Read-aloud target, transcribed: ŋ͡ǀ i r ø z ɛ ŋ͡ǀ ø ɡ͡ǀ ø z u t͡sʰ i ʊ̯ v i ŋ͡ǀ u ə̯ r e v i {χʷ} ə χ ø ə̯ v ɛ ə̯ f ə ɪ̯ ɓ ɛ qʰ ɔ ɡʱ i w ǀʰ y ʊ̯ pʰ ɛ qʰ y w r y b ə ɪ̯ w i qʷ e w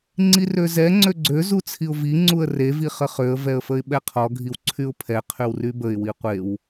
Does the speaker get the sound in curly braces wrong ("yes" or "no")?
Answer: yes